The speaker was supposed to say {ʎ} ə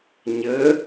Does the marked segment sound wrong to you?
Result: yes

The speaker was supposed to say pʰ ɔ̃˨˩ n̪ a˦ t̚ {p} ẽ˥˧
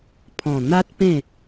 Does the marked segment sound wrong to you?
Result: no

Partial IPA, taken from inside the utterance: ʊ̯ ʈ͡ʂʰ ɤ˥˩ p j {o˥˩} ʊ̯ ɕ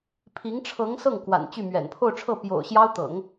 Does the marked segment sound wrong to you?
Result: yes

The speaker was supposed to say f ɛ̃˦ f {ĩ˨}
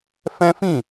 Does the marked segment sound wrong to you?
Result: yes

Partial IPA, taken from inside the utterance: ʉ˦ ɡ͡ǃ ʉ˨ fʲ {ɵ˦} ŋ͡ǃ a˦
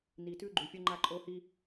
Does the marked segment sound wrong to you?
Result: no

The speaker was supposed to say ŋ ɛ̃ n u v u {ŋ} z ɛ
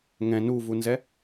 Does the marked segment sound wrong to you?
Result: yes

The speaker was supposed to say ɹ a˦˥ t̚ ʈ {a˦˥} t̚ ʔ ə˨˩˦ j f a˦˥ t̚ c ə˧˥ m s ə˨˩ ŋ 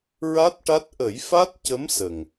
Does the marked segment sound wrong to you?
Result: no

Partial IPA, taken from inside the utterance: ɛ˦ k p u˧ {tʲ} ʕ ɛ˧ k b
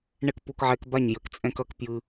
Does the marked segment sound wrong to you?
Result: yes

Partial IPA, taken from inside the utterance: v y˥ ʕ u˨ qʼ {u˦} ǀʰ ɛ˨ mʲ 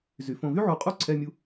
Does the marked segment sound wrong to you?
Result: yes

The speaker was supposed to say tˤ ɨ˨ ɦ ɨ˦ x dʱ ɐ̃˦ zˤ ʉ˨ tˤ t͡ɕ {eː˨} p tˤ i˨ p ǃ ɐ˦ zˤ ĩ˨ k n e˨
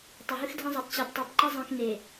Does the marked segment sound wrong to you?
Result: yes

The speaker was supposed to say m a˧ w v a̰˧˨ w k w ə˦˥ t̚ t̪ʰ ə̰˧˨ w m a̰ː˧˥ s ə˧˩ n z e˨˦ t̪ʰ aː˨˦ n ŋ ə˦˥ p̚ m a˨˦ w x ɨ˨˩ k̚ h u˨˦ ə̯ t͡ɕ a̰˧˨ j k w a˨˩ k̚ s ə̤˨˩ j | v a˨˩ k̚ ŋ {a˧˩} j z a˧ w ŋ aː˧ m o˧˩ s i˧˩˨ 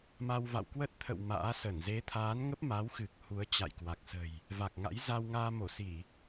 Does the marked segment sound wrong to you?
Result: yes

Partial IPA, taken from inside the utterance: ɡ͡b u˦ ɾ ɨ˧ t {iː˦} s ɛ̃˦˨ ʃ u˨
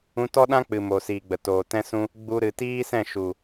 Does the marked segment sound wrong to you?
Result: no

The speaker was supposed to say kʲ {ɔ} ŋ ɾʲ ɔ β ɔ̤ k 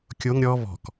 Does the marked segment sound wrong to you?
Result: yes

